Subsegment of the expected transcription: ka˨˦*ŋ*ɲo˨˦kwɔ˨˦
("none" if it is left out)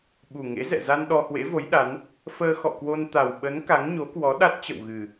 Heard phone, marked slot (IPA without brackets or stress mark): ŋ